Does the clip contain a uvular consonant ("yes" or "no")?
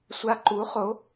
yes